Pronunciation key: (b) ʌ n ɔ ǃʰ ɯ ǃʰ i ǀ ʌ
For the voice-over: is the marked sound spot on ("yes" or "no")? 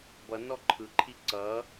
yes